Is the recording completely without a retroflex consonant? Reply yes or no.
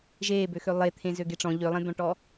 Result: no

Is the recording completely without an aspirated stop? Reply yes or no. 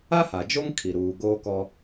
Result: no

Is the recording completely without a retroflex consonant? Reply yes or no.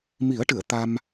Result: no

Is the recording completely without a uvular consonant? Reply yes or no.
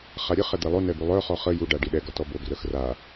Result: no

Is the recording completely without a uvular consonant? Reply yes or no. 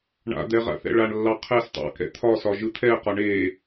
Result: no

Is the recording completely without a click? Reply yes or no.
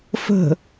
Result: yes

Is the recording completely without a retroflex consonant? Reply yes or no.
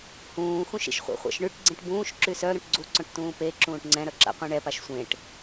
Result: no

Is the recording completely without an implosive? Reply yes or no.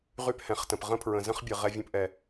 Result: yes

